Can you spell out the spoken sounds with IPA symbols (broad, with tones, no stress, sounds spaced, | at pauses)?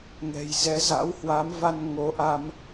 ŋ ɛ̤˨˩ j z ɛ˨˦ z a̰˧˥ w h w a˨˦ m v a˧ n ŋ o˨˦ ʔ a˧ m